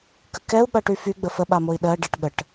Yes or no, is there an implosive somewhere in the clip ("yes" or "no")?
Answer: yes